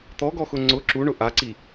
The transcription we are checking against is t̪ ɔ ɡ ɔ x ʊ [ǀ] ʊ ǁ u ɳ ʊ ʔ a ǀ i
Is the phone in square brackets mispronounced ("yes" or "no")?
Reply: yes